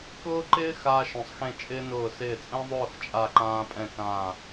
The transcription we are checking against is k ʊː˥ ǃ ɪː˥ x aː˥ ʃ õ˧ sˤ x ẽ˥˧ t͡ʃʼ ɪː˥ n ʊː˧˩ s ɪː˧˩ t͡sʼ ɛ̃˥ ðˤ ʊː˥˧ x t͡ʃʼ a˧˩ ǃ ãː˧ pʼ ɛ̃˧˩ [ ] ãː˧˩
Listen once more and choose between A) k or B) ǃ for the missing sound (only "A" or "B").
A